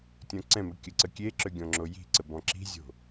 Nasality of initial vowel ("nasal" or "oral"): nasal